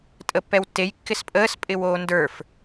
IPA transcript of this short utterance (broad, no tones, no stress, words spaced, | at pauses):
tʼəpːɛwtːej kːɪspʼəːs pʼɪwoːndə˞f